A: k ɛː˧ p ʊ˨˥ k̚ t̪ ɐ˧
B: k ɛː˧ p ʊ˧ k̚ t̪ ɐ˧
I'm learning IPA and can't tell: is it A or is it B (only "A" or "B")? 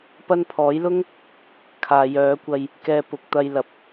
A